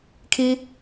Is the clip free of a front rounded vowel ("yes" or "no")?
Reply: yes